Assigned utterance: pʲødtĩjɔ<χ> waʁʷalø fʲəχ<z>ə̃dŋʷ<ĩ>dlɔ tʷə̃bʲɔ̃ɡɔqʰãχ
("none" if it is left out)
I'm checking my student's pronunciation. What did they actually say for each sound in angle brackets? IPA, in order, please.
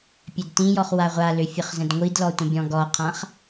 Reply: χ, z, i

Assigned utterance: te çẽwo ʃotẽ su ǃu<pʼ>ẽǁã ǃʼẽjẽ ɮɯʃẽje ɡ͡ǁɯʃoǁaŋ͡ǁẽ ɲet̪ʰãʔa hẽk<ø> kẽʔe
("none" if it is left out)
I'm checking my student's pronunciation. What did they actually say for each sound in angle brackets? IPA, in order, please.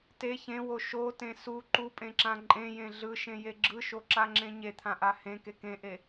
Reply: pʼ, e

